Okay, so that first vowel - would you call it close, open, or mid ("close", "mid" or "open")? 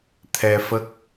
mid